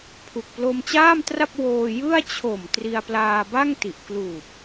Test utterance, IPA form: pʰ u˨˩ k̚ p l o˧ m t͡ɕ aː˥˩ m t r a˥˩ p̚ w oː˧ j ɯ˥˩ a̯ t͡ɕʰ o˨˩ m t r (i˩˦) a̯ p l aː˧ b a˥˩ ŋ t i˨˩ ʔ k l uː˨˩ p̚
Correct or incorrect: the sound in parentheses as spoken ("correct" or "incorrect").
incorrect